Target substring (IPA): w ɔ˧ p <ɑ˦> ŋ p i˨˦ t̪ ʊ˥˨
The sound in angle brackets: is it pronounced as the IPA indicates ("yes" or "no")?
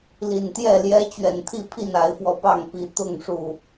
no